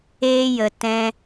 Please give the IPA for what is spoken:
eː˦jə˧ tɛ̃˦

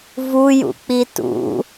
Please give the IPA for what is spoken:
vujṵk͡pi tṵ

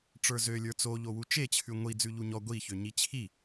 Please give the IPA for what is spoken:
ʈ͡ʂə˞zø lʲə˞t͡so ʎowut͡ʃe t͡ɕʰʉŋʷi d͡zʉʎuɲɔ ɡʷi çøɲit͡ɕʰi

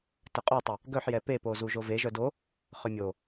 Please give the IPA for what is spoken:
təqʼotˤɛ | ɡœħ jɛpepo zuʒove ʒœdo | χømʲo

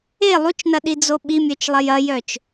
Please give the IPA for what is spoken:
e lˠut͡ʃnɐɗid͡zo ɓimʲœt͡ʃlˠɐj ɐjœt͡ʃ

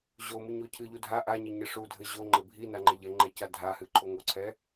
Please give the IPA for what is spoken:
ʑomɨɲo cʰɨʎu dʱa ʔaɲɘɲɘ ʂudʱɘ ʑoŋ͡ǃɘ bʱinaŋ͡ǃe ʎɛŋ͡ǃɛca dʱahɨǃʰoŋ oǀʰɛ

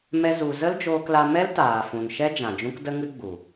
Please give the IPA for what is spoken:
mɛ˦zu˧ zə˦ld͡ʒoː˧kla˧mɛ˦l taː˨fũ˨nʃɛ˦ d͡ʒã˨d͡ʒũ˦kdə˦ŋɨ˦ ɡ͡bu˨

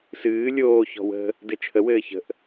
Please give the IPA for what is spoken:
sɨː lʲoːçɔ̤ wə̤ | dɘt͡ʃʰəwɘː çə̤ʔ

